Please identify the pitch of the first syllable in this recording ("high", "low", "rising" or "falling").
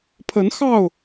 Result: rising